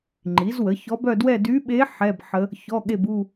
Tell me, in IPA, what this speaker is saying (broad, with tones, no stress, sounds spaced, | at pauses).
ŋ͡ǃ i˩˥ z w ə˩˥ ç ɔ˧˥ b œ˥˧ d w ɛ˥˧ d y˧˥ ɓ e˧˥ ħ ɛ˧˥˧ b ħ ə˧˥ | ç ɔ˧˥˧ ɠ e˥˧ b u˥˧